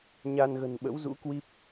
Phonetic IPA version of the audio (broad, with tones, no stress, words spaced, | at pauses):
ɲa˧nɣə̤˨˩n ɓə̰˧˥wzṵ˧˥kwi˦˥p̚